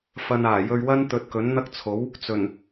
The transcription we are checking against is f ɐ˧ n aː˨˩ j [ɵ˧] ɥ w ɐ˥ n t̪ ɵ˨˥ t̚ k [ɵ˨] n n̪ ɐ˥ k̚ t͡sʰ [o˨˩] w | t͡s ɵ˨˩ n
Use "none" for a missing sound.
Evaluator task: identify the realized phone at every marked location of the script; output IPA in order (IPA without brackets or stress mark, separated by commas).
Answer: ɵ˧, ɵ˨˥, o˨˥